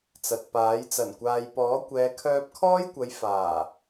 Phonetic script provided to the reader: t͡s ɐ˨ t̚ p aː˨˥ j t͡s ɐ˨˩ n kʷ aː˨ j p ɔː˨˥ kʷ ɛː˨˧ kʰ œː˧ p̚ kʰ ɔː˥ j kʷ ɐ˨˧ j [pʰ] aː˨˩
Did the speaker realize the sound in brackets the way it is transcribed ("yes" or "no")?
no